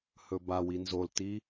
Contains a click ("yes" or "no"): no